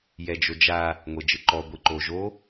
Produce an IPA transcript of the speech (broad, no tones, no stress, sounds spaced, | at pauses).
j ɛ d͡ʒ o d͡ʒ a | ŋʷ e d͡ʒ ɯ ǃ ɔ ɡʷ i ǃ o ʒ o